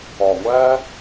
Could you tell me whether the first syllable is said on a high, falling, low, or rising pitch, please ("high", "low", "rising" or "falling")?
low